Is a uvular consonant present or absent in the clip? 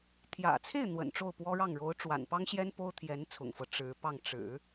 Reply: absent